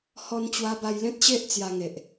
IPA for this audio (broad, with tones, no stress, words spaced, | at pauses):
hɔ˧n t͡ɕwa˧ba˧jlẽ˦t̚ɕe˦ʔ t͡sja˧ŋe˨ʔ